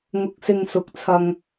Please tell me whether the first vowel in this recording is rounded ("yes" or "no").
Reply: yes